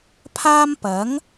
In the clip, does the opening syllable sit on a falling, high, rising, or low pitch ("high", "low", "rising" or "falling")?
high